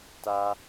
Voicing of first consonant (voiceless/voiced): voiceless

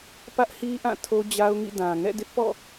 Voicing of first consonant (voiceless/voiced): voiceless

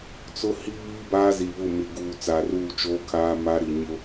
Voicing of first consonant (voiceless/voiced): voiceless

